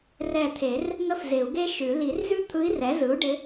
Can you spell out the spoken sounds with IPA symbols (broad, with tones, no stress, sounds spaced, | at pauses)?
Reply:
r ɛ˧˩ t̪ʰ e˨˩˦ r | ŋ ə˥ f z ɪ˨˩˦ u̯ ɡ e˥ ʃ ʉ˨˩˦ l i˨˩˦ r z ʉ˥ t̪ʰ ɯ˧˥ i̯ r ɛ˩˥ z ɯ˩˥ u̯ ɖ ɪ˧˥